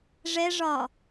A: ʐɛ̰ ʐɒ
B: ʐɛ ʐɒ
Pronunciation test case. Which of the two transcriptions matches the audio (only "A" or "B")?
B